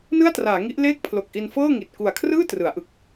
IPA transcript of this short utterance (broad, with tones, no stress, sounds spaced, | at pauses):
n ɯ˥˩ a̯ t r aː˩˦ ŋ i˦˥ ʔ l eː˥˩ k̚ pʰ l o˨˩ k̚ ʔ i˧ n f ɤː˥˩ ŋ i˨˩ t̚ k u˨˩ a̯ kʰ r ɯː˥˩ t r ɯ˩˦ a̯ ʔ ɯ˨˩ k̚